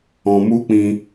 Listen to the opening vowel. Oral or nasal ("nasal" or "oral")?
nasal